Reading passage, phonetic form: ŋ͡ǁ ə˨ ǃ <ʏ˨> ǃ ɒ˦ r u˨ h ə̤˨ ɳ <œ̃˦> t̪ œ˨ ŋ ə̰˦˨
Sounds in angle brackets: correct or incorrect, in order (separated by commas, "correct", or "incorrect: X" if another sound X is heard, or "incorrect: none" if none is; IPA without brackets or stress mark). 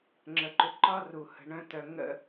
correct, correct